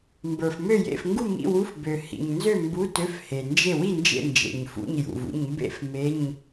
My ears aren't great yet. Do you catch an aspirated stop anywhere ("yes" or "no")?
no